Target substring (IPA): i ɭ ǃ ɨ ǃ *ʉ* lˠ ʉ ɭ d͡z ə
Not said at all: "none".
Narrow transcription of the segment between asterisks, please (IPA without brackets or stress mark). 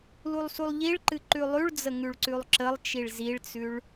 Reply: ʉ